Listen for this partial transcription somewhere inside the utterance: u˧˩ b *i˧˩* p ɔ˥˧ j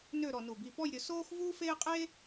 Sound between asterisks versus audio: correct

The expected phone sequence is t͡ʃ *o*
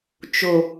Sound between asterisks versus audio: correct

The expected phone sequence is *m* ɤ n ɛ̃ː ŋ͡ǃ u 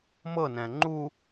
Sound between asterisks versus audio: correct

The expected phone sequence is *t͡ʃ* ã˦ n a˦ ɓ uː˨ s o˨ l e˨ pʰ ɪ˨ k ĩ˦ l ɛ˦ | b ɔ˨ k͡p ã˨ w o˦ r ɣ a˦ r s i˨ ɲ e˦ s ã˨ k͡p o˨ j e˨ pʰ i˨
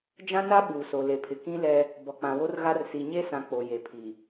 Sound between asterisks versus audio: incorrect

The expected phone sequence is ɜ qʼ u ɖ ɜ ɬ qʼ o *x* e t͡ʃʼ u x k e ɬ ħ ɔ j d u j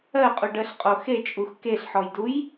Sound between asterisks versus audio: correct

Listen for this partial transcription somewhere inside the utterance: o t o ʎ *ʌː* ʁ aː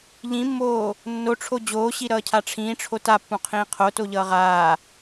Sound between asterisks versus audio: correct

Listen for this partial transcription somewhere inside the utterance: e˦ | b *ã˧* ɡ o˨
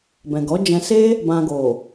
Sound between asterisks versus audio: correct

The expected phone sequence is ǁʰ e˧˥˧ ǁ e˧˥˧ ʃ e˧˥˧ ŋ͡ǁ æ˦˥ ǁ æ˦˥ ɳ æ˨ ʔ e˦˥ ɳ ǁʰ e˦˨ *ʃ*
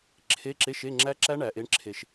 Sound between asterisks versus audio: correct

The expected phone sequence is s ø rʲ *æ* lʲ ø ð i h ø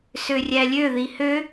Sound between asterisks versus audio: correct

